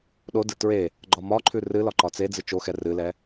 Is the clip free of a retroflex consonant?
yes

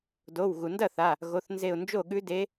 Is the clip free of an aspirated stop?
yes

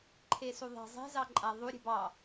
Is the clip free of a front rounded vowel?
yes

